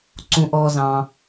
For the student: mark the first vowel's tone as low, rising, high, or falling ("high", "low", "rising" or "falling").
low